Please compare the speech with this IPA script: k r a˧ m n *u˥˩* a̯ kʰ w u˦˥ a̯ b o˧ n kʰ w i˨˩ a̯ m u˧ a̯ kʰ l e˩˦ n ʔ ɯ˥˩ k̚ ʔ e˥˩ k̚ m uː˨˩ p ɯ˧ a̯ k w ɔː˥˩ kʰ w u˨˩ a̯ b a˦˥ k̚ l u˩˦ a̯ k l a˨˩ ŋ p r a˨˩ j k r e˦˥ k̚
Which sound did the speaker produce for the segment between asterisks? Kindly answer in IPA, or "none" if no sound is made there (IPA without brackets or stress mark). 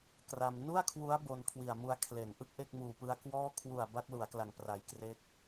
u˥˩